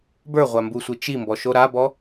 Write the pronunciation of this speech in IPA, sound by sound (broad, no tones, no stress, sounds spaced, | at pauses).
b ə˞ ʁʷ a m b u sʷ i t͡ʃ i m b ɔ ʃ o ɾ a b ɔ